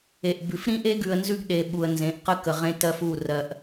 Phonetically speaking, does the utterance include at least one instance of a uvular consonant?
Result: yes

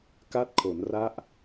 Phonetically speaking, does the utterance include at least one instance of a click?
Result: no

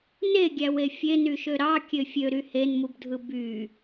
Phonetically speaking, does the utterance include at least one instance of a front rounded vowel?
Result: yes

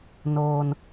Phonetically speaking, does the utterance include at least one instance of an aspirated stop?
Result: no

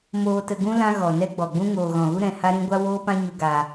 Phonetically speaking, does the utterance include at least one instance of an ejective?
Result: no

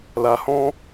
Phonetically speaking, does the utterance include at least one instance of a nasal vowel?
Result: yes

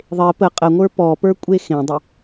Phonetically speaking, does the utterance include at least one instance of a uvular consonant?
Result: yes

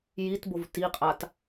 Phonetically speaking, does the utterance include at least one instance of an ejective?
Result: yes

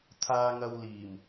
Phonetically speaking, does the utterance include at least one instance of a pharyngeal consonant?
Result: no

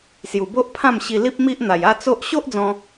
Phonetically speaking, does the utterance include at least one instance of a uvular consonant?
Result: no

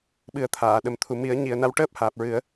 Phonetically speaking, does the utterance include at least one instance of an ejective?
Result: no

